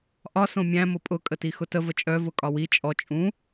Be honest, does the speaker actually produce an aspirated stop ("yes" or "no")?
no